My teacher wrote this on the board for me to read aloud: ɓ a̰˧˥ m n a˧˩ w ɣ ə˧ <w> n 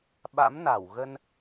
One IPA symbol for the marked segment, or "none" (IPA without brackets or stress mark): none